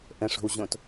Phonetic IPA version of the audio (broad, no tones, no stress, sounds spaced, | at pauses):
ʔ ə̃ ʂ o̤ w ʑ õ t